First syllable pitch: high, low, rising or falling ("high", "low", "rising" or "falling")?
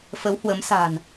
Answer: rising